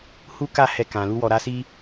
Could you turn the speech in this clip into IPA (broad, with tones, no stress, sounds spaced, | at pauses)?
h u˦ k a˦˨ h ɛ˧ k ã˨ l u˧ w ɔ˨ ɾ a˧ s i˧